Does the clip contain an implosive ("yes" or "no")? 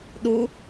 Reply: yes